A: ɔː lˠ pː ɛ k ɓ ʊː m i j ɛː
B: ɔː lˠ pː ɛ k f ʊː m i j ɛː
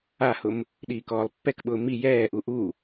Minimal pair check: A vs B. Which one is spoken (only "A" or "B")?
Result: A